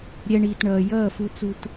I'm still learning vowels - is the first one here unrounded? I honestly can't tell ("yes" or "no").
yes